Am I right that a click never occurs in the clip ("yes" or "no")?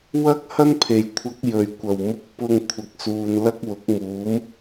yes